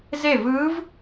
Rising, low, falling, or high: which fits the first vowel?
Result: falling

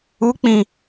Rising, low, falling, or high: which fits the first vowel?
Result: rising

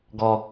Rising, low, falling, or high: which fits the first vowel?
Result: high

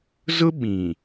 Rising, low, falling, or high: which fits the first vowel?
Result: high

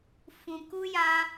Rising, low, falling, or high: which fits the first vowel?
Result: low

